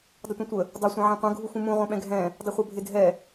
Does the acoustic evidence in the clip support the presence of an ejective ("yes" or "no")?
no